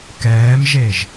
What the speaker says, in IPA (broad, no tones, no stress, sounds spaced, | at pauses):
k ɛː m ʒ e ʒ